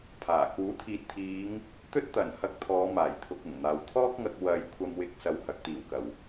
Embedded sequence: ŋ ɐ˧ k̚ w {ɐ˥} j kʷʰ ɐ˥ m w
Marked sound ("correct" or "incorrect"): incorrect